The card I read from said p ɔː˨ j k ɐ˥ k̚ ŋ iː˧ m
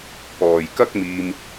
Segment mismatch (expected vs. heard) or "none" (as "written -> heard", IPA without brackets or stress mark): ŋ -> m